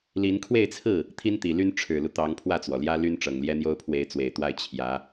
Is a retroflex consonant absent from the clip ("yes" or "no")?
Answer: no